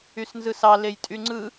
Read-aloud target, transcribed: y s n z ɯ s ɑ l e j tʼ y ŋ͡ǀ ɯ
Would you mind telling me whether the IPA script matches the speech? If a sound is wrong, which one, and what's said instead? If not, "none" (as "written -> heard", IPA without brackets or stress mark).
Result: none